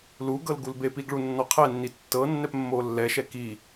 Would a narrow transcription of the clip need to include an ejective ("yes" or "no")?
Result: no